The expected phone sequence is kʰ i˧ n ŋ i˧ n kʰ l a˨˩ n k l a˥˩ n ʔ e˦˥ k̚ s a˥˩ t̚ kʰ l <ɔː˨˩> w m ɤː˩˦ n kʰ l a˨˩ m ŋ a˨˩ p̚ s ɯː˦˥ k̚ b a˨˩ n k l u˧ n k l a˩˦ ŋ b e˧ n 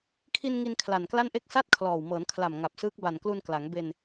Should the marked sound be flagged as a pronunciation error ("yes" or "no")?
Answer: no